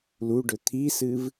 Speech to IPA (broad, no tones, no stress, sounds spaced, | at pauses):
l u ɖ ɵ t̪ʰ i s ɨ v